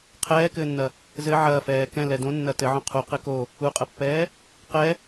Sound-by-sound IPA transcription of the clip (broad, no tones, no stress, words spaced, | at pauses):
qʰɛːkɘːnːɐ | zɘ ʕɐːfɛː kɛ̃lɛ dõnːɐ tɘʕõ qʰu qɘko | uqʼɐpːɛː | qɛ